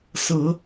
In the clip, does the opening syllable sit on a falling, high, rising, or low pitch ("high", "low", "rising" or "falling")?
rising